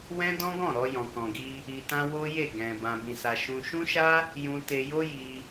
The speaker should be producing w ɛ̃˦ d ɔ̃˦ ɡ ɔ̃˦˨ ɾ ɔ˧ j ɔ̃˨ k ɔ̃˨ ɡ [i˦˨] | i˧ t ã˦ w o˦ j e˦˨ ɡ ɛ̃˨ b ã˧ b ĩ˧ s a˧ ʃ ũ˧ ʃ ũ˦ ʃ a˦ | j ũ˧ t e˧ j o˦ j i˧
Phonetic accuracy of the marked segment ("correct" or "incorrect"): incorrect